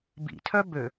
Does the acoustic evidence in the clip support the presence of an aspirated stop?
yes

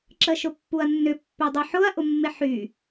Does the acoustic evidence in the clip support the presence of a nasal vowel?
no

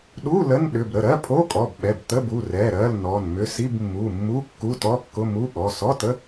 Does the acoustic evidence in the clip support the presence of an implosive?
yes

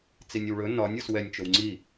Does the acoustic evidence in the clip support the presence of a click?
yes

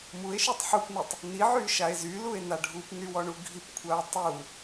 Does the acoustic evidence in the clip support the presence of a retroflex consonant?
yes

